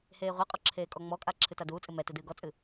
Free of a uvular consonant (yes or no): no